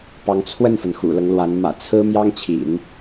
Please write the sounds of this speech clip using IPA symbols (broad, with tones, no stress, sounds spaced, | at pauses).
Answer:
p ɑ˧˥ ŋ t͡sʰ w ə˥˩ n f ə˩ n x ṵ˨˩ l ɤ˦ ŋ l w a˧˥ n m ä̰˨˩ t͡sʰ ɹ̩˥ m j ɑ˥ ŋ t͡ɕʰ ḭ˨˩˦ n